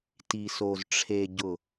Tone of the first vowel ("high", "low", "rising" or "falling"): low